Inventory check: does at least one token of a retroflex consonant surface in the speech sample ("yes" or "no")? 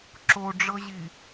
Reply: yes